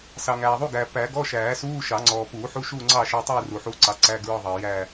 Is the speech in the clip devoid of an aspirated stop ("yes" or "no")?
yes